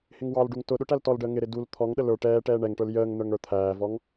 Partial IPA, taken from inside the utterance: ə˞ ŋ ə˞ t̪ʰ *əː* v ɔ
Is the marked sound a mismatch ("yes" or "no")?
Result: yes